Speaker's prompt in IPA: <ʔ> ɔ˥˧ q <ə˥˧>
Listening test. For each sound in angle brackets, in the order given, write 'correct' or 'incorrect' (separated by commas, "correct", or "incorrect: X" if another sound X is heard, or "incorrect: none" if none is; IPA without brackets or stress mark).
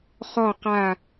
incorrect: χ, incorrect: a˥˧